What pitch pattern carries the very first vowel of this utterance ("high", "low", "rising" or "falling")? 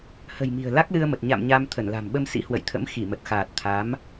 low